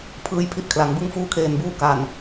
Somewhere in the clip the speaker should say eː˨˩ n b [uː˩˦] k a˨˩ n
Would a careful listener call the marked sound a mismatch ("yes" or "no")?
yes